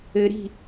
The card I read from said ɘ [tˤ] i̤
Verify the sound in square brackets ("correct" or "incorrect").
incorrect